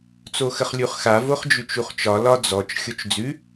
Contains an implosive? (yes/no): no